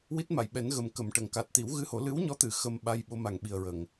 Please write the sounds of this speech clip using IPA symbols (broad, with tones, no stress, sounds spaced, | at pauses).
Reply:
w i˦˥ t̚ m a˨˩˨ j ɓ ɛ˨˩˦ n ɣ ə˨˩ m k ə˨˩˨ m ʈ ə˨˩˨ ŋ k a˨˩ t̚ t̪ i˨˩˦ w ɣ ɨ˧ h o˨˩˦ l ɨ˧˥ w ɲ ɔ˧˥ t̪ ɨ˨˩˨ x ə˧ m ɓ a˧ j ɓ o˧˥ m a˨˩ ŋ ɓ i˨˩ ə̯ ɹ ə˨˩˨ ŋ